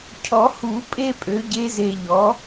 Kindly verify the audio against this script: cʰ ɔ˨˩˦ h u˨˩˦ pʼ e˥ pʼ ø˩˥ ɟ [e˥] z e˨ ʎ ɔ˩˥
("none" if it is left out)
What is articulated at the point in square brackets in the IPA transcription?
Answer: e˧˥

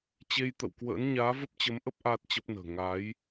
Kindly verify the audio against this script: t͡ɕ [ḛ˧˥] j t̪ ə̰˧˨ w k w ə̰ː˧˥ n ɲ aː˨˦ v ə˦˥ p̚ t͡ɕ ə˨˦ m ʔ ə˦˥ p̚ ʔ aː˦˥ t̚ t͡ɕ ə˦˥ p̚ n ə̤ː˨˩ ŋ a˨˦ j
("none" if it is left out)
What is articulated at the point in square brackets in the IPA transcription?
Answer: e˧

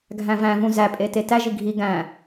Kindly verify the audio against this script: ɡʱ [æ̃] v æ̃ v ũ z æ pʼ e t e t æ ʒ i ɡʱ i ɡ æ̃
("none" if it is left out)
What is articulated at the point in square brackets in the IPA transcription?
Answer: æ̃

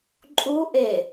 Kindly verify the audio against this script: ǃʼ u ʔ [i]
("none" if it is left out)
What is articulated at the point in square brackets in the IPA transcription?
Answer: e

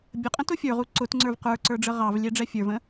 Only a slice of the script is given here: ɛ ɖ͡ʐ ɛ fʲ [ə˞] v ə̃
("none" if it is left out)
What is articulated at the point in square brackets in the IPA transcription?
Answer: ə˞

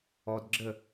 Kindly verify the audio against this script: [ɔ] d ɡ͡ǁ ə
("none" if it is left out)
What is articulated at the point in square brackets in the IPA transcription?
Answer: ɔ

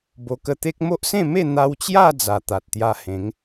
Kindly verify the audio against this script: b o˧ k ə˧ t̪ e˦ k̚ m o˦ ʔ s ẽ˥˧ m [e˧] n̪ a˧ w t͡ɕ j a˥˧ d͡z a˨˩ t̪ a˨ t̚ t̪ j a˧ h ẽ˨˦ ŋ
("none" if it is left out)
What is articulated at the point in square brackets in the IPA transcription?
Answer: e˥˧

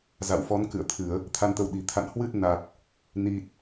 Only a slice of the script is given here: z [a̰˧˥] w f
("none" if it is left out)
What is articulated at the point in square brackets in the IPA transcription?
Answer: a̰˧˨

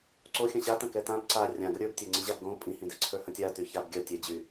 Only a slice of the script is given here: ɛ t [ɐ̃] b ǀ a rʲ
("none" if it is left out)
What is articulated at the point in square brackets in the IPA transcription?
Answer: ã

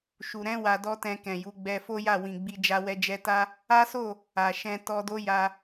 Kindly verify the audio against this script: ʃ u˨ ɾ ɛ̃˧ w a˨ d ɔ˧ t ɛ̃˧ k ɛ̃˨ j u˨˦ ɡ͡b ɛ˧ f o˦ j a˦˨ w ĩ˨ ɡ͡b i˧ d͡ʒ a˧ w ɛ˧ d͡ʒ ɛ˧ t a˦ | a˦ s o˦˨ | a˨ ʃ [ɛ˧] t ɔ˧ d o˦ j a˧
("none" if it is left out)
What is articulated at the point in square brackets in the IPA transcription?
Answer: ɛ̃˧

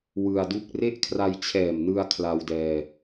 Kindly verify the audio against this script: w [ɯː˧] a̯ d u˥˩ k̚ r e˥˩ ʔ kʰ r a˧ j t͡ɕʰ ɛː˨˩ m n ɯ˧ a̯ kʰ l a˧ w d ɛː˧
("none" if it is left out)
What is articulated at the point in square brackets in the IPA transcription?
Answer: ɯ˧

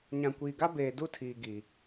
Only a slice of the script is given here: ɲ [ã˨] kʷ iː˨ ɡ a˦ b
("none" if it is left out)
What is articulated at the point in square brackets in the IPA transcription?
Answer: ã˨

